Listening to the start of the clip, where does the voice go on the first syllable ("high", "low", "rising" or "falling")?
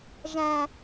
low